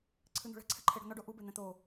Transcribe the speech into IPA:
ǀʰ ɨ n̪ ṳ ɭ ɛ̤ ǀʰ ɛ̤ ǃʰ e ɽ ṳ n ɔ ɖ o ʔ u b e n̪ ɛ̃ t̪ o

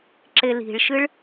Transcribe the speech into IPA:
ǁ e l i̤ ɭ ʃ ɨ ɭ

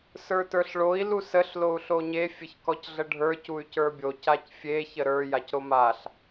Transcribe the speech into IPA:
s ə˞ t ə˞ ɬ ɭ o i̯ l u s ə ɬ l o u̯ ɬ o ɲ e fʲ ə ç k ɔ c ɮ ə ɖʱ ə˞ c u y̯ c ə˞ bʲ o c a c fʲ e ç ə ɾ ə˞ j a c ɾ o m a ɬ

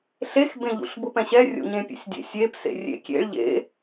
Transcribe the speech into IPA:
ɬ e x b ẽ ʎ ṵ ɬ b ʊ p ɛ̃ ɕ ɛ rʲ o̰ ɲ ẽ pʲ ḛ sʲ dʲ ḛ sʲ e p s ḛ rʲ ḛ kʲ ḛ ɭ ʎ ḛ

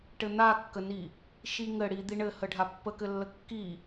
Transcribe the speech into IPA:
ʈ ɘ n̪ a kː ə n i | ʃ i ŋ ɘ ɽ i d̪ i ɳ ɘ h ə ɖʱ a pː ə k ɘ lː ə kː i

